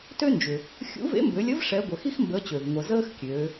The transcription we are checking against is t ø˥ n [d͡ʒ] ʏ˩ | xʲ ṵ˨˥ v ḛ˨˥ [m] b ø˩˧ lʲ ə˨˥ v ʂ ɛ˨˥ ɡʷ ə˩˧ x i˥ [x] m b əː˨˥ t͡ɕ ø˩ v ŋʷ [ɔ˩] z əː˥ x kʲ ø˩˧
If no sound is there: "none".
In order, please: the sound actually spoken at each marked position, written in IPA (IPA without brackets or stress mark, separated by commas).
d͡ʒ, m, x, ə˩